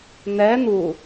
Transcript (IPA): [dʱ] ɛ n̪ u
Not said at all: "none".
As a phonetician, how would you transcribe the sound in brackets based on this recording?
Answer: n̪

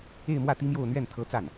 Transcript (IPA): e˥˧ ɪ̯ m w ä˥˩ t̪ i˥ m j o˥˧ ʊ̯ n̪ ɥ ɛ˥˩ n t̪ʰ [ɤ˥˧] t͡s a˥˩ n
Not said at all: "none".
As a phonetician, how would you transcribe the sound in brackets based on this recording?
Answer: ɤ˥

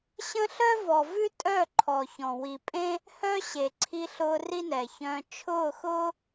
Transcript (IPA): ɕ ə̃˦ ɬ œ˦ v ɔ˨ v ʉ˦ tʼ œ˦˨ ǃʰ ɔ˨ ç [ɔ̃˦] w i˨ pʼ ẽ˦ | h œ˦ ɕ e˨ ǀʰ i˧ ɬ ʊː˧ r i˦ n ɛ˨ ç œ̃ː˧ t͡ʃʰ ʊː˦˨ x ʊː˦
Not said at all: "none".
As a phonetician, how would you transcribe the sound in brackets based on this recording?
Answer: ɔ̃˨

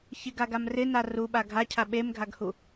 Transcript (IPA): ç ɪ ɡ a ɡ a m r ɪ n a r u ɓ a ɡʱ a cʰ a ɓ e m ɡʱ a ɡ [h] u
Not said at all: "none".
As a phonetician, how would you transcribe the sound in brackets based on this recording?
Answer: h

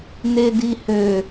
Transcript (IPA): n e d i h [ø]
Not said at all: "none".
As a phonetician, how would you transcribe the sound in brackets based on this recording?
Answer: ø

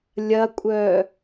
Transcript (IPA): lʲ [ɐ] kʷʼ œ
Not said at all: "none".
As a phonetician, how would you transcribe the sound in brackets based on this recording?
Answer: ɐ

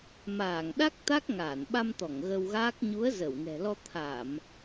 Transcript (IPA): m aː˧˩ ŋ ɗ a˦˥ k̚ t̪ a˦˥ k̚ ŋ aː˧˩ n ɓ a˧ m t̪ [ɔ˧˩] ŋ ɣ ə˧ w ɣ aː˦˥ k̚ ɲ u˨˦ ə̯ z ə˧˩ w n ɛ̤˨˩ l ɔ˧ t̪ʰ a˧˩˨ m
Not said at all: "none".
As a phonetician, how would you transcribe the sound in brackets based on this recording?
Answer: ɔ˧˩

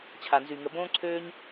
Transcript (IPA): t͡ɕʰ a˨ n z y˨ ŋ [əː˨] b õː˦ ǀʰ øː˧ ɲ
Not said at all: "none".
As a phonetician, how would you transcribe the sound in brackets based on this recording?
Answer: ə˨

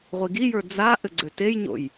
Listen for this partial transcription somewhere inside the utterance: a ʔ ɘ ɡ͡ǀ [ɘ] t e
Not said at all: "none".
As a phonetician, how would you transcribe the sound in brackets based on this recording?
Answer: ø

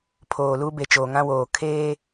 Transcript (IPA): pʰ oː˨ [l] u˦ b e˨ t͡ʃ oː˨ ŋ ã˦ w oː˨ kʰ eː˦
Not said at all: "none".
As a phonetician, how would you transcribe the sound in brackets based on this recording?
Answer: l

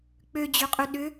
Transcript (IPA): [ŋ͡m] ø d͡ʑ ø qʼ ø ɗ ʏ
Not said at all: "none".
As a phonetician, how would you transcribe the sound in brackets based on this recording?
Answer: k͡p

